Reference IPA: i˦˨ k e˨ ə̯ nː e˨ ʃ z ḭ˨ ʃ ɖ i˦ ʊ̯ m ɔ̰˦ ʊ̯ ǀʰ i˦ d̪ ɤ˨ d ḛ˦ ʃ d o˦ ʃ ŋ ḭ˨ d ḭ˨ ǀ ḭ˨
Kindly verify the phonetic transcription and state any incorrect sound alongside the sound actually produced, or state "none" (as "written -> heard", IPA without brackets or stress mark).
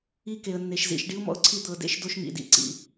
none